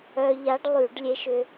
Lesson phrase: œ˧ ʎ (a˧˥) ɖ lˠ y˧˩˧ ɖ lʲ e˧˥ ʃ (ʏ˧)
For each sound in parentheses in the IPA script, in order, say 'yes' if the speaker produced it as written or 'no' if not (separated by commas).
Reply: yes, yes